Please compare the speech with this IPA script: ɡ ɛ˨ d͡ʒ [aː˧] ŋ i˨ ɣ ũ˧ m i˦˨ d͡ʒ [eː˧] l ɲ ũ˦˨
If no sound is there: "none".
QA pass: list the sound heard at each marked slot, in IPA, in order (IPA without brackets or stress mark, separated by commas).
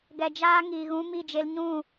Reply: aː˧, e˧